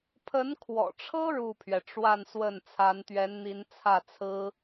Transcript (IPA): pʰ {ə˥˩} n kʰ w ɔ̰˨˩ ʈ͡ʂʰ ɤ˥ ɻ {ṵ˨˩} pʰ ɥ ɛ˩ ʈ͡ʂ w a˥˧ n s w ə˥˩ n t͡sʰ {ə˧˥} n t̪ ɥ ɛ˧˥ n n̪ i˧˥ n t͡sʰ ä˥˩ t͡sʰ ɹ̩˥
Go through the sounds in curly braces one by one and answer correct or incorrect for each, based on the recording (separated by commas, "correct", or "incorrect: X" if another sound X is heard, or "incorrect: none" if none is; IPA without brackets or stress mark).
incorrect: ə˧˥, incorrect: u˥˩, incorrect: a˧˥